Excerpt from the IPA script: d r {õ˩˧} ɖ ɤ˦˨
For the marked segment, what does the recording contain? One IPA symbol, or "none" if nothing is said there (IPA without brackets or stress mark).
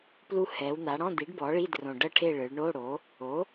õ˨˩